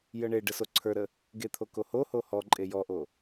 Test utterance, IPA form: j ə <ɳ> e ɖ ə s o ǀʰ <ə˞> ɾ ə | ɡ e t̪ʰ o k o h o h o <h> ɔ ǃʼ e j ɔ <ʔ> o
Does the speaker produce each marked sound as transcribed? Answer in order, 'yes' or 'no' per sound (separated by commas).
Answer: yes, yes, yes, yes